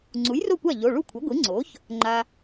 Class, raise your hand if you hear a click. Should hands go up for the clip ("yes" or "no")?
yes